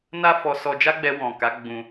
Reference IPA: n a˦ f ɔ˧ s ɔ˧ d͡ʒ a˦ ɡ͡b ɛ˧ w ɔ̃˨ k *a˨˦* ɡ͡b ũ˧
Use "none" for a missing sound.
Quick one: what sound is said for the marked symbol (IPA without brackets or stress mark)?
a˨˦